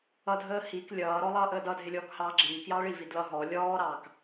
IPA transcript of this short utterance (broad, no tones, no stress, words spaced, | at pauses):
ʌdʱəː hik lʲʌːɾɔ lˠʌːʔəːdʌdʱɪ lʲɔːkhɑːɡ͡ǁiːkjɑ ɭivi dlʌ ɦɔ lʲɔːɾɑːk